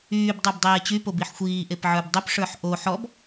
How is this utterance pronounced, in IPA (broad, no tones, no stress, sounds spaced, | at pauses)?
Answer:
yː b dˤ ə˞ b dˤ eː t͡ɕ y p o b i ħ xʷ iː ʔ e p ʕ ə˞ b dˤ ʏ p ʂ ə˞ ħ ʔ o ħ ɔ b